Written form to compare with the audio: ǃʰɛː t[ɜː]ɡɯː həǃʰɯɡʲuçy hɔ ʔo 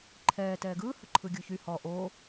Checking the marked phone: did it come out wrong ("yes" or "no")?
yes